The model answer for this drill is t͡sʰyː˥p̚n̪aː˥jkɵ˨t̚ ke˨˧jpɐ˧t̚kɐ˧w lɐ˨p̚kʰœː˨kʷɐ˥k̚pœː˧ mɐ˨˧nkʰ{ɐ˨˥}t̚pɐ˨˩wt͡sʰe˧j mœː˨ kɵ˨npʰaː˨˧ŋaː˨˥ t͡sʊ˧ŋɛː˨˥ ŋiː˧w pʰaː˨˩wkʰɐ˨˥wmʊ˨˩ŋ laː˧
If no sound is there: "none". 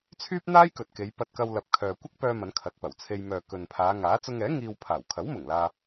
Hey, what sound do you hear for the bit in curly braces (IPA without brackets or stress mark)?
ɐ˨˥